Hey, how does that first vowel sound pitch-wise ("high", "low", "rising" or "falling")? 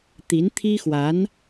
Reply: rising